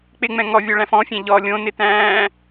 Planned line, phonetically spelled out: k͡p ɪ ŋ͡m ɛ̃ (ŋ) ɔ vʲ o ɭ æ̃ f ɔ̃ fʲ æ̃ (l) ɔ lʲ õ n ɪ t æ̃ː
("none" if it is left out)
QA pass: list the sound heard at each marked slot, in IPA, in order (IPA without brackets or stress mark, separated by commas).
ŋ, ʎ